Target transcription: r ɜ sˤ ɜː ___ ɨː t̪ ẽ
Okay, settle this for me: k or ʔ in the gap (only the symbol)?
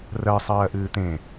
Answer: ʔ